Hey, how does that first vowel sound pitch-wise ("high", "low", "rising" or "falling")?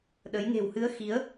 rising